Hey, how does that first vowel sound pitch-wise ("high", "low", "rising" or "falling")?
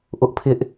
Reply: high